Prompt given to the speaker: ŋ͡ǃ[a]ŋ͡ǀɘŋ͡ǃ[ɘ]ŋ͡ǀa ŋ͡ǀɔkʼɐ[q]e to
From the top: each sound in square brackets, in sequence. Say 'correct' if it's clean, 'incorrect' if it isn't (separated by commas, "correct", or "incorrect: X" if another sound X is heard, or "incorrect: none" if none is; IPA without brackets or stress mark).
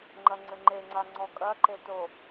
incorrect: ɐ, incorrect: e, incorrect: ǃ